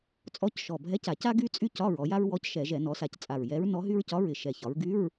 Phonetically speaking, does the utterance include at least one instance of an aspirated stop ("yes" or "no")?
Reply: no